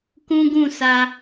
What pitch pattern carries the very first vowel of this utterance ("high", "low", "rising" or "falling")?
high